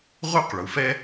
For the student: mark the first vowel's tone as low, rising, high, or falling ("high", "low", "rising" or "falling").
high